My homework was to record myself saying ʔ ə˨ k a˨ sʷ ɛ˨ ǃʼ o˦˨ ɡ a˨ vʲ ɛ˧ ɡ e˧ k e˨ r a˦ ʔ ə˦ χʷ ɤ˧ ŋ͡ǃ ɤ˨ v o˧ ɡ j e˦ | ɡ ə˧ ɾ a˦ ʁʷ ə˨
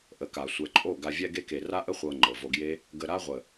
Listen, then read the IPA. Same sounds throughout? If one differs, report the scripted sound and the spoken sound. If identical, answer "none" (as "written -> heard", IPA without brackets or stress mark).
none